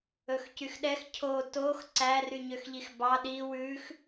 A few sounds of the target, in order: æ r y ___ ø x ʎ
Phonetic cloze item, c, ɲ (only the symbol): ɲ